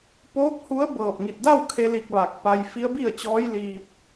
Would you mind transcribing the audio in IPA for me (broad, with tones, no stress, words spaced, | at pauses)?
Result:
poː˧˥k̚hu˧˥ə̯ bɤː˧˩p̚ŋi˧˩t̚da˥˨wkʰe˧ li˧k̚ʋa˧˩k̚pa˧j fi˧˥ə̯bi˥˨ə̯t͡ɕɔː˧˥j liː˧p̚